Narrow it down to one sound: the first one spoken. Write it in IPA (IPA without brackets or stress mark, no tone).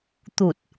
t̪